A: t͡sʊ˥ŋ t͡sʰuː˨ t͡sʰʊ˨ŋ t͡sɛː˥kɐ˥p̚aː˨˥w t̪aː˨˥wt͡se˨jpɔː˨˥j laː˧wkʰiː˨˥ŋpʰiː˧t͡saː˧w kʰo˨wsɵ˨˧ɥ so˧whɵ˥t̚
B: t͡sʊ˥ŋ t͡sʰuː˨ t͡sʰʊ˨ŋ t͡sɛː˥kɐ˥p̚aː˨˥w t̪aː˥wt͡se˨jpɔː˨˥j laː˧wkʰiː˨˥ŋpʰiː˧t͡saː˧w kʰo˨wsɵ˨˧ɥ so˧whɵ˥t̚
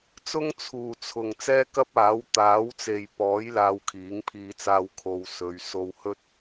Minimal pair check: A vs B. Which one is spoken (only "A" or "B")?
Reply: A